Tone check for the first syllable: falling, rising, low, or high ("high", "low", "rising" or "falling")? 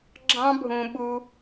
high